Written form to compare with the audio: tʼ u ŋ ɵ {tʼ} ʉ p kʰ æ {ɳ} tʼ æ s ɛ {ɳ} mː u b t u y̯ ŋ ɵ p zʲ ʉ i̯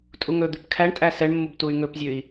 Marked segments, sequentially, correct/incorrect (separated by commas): incorrect, correct, correct